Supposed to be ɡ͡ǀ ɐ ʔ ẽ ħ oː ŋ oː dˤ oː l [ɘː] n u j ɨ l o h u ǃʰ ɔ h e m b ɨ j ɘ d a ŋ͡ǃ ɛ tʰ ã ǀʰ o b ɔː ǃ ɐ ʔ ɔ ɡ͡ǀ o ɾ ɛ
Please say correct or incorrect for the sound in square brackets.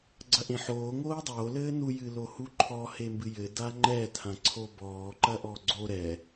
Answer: correct